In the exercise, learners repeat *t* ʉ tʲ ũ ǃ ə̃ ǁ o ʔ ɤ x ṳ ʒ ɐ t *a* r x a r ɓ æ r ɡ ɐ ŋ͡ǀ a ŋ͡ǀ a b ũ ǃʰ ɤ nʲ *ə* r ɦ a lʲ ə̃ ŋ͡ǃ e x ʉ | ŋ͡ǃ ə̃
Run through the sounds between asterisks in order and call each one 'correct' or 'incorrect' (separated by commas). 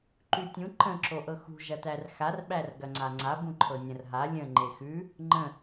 incorrect, incorrect, incorrect